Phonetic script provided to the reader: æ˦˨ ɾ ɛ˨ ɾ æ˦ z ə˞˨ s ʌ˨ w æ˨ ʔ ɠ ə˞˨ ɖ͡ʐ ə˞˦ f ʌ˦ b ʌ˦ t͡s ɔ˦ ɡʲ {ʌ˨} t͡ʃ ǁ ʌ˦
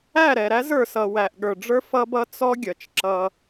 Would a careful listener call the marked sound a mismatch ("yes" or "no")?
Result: no